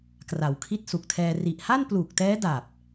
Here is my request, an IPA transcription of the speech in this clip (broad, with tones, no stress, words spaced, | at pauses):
kra˩˦wkʰi˦˥t̚ su˨˩k̚tʰɛː˧ ri˨˩ʔha˥˩npluː˨˩k̚tɛː˦˥ da˨˩p̚